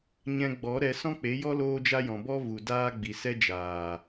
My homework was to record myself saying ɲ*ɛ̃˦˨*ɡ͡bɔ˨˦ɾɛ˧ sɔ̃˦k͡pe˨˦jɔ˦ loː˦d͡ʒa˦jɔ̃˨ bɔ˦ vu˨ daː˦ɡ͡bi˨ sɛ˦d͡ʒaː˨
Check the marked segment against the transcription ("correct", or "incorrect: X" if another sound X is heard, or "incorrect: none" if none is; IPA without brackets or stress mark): incorrect: ɛ̃˧